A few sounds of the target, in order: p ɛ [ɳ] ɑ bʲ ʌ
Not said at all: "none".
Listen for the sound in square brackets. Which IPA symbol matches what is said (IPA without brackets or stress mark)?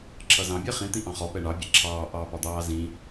ɳ